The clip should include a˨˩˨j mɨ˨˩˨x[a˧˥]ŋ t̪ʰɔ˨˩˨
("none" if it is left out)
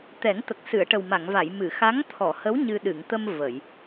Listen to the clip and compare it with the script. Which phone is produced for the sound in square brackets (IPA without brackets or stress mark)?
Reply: a˧˥